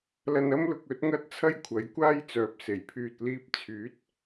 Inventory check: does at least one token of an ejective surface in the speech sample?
no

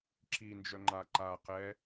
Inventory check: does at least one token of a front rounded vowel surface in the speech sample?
yes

